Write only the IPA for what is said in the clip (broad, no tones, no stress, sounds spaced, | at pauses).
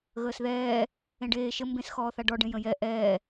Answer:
ɣ əː s ð ɛː | ẽ ɖ eː ʃ ə m b ẽ s x ɔː θ a ɖ ɔ ɖ ẽ j ə̃ j ɛ ʔ ɛː